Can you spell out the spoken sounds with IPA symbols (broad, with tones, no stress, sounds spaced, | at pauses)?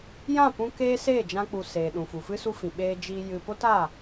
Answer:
j ã˦˨ p ũ˧ k eː˦ s eː˦˨ d͡ʒ ã˧ k͡p u˨ s eː˨ ɗ ũ˨ f u˨ f ɨ˦ s u˦ f ĩ˨ ɓ eː˧ d͡ʒ iː˧ j ɨ˧ p o˦ t a˦˨